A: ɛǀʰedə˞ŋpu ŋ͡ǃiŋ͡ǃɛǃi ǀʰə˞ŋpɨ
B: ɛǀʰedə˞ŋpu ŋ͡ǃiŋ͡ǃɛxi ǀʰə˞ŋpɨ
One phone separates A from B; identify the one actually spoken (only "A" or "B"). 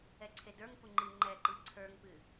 A